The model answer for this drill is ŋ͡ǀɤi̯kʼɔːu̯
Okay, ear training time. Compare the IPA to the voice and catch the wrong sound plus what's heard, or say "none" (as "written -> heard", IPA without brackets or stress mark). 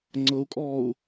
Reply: i̯ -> u̯